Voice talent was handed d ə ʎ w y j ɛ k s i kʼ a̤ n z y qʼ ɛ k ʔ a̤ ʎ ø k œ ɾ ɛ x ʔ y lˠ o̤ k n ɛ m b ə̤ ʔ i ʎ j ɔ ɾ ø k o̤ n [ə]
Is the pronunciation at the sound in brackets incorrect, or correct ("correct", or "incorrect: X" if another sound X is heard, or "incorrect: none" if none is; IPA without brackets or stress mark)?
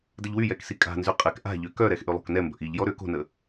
correct